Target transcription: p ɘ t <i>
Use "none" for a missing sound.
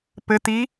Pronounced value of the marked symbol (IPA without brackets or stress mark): i